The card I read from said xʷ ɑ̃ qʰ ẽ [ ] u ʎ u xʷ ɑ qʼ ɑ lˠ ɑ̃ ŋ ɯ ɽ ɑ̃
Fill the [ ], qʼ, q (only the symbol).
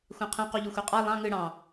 q